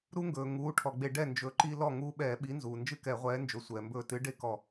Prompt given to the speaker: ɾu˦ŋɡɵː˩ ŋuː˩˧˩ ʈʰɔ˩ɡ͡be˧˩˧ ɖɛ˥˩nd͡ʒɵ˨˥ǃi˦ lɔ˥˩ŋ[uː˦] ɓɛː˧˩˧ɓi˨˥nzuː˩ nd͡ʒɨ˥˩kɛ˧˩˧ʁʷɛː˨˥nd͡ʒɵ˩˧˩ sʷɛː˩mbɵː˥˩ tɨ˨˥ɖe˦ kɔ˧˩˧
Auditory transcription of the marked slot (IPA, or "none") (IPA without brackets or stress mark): uː˦